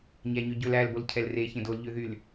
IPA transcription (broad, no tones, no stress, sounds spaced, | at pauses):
ɲ æ ɲ ø ɟ ɵ l æ l b o l cʰ ɛ l r e ç ẽ d o l ʎ ø ð y l